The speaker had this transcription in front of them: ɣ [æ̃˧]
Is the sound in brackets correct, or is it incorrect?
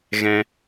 incorrect